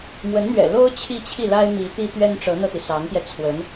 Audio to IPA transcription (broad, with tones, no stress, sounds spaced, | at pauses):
m w ə˧˥ n n̪ ɥ ɛ̰˨˩ l o˥ ʊ̯ t͡ɕʰ i˥˧ t͡ɕʰ i˥˩ l a˥ ɪ̯ m i˧˥ t̪ i˥ t̪ ɥ ɛ˥ n ʈ͡ʂ ɤ˧˥ n̪ ɤ˧ t̪ i˩ s ɑ˧˥ ŋ p j ɛ˧ t͡sʰ w ə˧˥ n